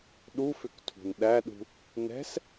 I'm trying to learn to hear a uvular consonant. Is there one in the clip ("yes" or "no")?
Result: no